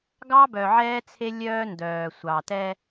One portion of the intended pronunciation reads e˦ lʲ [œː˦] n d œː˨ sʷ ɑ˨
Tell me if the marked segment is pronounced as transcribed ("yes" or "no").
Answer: yes